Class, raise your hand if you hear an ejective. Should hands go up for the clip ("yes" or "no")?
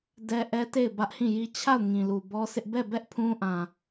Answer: no